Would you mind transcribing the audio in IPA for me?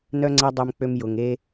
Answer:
n œ˦ ŋ͡ǀ ɛ˦ dˤ ø˧ m k͡p ø˧ m j ʊ˨ ŋ e˧

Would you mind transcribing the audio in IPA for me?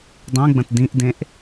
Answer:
dˤ ẽ ɡ͡b ə̃ t d ĩ ʔ d ẽ ʔ

